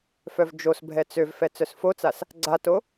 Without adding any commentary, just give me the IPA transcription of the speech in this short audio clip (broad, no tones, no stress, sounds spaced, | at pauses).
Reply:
f œ v d͡ʒ o s bʱ ɛ t͡s ø v f ɛ t͡s œ s f o t͡s a s | ɡ͡ǀ a t o